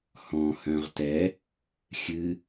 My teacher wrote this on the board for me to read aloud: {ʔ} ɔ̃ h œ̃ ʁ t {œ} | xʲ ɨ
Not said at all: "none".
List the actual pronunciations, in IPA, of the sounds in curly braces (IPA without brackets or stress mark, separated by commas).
h, ɛ